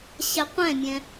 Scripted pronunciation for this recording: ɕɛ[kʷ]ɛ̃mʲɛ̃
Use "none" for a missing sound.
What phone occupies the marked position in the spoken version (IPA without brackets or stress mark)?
qʷ